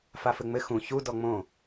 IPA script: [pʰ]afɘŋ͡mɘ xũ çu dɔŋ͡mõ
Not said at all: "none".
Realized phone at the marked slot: f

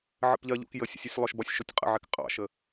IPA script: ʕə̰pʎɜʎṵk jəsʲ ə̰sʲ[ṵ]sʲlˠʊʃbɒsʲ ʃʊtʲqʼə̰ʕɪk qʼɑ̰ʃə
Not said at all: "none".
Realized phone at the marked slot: u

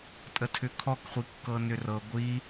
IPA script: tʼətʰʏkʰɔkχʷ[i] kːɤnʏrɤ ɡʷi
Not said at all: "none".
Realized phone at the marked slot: i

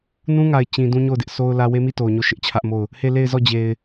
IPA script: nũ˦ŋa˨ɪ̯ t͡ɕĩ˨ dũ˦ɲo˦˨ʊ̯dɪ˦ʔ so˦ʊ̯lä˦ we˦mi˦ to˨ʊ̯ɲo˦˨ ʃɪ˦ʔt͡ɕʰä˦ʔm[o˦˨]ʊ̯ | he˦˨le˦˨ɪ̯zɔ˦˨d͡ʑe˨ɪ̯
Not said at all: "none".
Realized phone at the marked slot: o˦˨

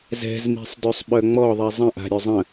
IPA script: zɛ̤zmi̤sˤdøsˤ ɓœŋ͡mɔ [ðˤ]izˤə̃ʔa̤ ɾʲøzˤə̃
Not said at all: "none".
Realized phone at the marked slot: ðˤ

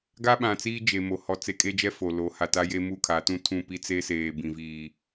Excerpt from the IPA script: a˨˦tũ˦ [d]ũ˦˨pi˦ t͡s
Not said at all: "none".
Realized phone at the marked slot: tʰ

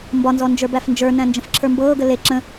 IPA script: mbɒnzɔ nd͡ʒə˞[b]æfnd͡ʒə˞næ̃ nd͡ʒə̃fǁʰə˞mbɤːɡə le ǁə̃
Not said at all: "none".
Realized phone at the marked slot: b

